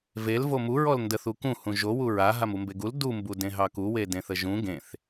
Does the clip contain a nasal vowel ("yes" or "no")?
yes